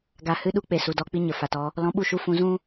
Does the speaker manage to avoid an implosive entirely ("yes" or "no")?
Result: no